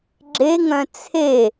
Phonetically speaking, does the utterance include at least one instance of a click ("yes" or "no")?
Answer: yes